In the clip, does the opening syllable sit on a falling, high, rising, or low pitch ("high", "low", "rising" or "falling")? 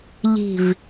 falling